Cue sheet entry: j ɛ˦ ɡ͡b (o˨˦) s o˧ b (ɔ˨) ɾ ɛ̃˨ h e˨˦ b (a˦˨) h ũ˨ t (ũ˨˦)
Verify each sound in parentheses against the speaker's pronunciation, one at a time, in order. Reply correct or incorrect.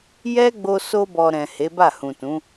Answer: incorrect: o˧, correct, correct, correct

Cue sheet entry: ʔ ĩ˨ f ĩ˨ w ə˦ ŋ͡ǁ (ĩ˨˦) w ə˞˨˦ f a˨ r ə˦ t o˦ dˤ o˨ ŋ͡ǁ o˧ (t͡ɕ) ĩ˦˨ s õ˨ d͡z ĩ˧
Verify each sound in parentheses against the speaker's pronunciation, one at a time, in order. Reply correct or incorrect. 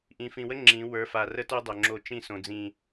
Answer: correct, incorrect: t͡ʃ

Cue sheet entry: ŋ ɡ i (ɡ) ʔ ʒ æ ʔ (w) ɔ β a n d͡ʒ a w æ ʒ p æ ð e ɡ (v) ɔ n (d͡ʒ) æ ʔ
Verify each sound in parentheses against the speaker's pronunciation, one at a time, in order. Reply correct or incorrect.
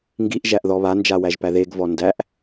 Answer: incorrect: none, incorrect: ð, correct, incorrect: d

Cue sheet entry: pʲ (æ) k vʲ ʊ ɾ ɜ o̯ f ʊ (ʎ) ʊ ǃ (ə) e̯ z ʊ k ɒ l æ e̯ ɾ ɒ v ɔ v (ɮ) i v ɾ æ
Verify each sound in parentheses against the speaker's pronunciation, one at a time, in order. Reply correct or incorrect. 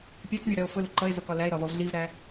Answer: correct, incorrect: l, incorrect: ʌ, correct

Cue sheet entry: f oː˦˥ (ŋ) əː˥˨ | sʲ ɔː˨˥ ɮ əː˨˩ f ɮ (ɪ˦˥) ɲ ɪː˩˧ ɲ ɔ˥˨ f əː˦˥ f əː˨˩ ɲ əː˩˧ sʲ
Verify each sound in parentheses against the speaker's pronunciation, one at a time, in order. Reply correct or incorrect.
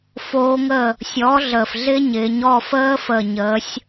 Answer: correct, correct

